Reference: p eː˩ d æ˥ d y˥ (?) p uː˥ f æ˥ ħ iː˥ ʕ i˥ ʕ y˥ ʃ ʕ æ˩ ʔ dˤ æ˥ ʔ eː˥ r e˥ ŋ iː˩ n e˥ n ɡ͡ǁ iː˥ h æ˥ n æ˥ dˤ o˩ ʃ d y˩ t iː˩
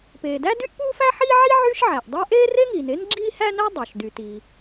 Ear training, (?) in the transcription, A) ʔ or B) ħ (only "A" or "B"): A